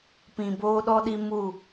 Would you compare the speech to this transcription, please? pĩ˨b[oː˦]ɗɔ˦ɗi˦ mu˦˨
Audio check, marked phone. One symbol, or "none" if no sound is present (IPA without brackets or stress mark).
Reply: oː˦